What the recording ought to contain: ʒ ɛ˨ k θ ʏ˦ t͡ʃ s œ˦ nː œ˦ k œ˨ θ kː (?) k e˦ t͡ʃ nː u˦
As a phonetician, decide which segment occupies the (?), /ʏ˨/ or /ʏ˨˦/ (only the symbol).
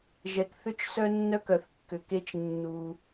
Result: ʏ˨